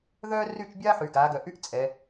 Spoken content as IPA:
ð œ˥ r y˥˧ t͡ʃ bʲ a˥ ħ y˩˧ ɡ a˩˧ ɡ œ˩˧ ʔ y˥ ʔ t͡sʼ ɛ˩˧

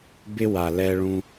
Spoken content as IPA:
b ɪ˧ w a˨ l ɛ˧ ɭ ũ˧

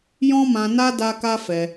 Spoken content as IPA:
j ɔ̃˦ m ã˧ n a˦ d a˦ k a˦ f ɛ˧

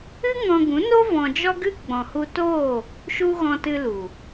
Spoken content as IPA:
ɨ˦ ŋ ɔ̃˧ ɡ ũ˨˦ n o˦ v ɔ̃˧ d͡ʒ ɔ˦ ɡ ɨ˦ ɡ͡b ɔ̃˨ h u˧ t oː˦˨ | ʃ u˦ ɣ ɔ̃˧ t ɨ˧ l u˨

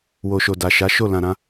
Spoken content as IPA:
w o˨ ʃ o˨ d a˨ ʃ a˨˦ ʃ o˦˨ l ã˨ ɾ ã˧

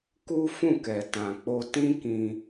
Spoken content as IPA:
k u˦ f ũ˦˨ k ɛ˨ t ã˨ k͡p o˧ t ĩ˦ k ĩ˧

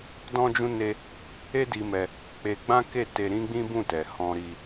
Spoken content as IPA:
d ɔ̃˦ d͡ʒ ũ˦ n e˦ | e˦ d i˧ m ɛ˧ | k͡p e˧ ɡ͡b ã˦ k e˦˨ t e˧ ɾ ĩ˦ ɡ͡b ĩ˦ b ũ˦˨ t ɛ˨ h ɔ̃˧ ɾ i˧

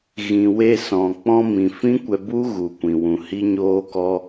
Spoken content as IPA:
ɣ ĩ˨ w e˧ s ɔ̃˨ k͡p ɔ̃˧ m ĩ˨ f ĩ˦ kʷ ɛ˧ b u˦ ɣ u˨ kʷ ĩ˨ w ũ˨ h i˦ ɲ oː˦ k ɔ˦

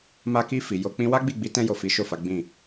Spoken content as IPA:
m a˧ k i˧ f i˨ j o˧ k͡p ĩ˦ w a˦ ɡ͡b i˦˨ ɡ͡b i˨˦ t ɛ̃˧ j o˨ f i˨˦ ʃ o˦˨ f a˨˦ ɡ͡b ĩ˦˨

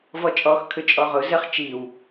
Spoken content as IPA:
v ɔ t͡ʃʼ ɔ x kʰ ʏ t͡ʃʼ ɔ ʁ ʊ z ə χ t͡ʃ i w

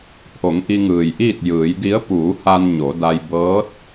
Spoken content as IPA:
pʰ o˩˧ ŋ ʔ i˧ ŋ ɯː˩ j ʔ iː˥˨ t̚ j ɯː˩˧ j d i˧˥ ə̯ p uː˩˧ h a˧ n ɲ o˩˧ d a˧ j b ɤː˧˥ t̚

